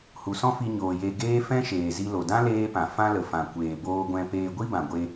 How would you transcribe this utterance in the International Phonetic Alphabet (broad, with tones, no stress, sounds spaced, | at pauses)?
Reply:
h u˨ s ɔ̃˦ f i˧ ɲ oː˨ j e˧ ɡ eː˦ f ɛ̃˦ ʃ eː˨ z i˧ l o˨ d ã˦ l eː˦ p ã˨ f ã˦ l ə˨ f ã˨ kʷ eː˨ b oː˧ ɡʷ ɛ̃˧ p eː˧ ɡʷ i˦ b ã˨ ɡʷ e˧